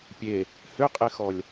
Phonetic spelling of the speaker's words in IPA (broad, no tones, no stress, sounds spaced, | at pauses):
pʲ e | h ʏ qʼ e x ɔ lʲ